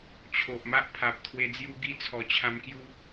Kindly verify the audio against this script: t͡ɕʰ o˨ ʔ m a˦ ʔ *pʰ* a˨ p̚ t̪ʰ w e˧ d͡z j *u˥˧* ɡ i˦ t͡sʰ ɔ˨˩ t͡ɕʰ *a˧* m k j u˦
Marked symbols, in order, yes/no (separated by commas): yes, no, no